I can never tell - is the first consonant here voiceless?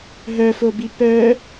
no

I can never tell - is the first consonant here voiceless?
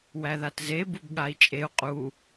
no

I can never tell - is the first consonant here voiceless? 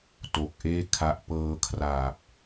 yes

